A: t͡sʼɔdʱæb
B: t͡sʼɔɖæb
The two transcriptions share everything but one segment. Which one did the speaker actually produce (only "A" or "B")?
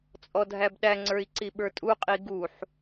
A